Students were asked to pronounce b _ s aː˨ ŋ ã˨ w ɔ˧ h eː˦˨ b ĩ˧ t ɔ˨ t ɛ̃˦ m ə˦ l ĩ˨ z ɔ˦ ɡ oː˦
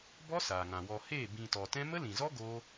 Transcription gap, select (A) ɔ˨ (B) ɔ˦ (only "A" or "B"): B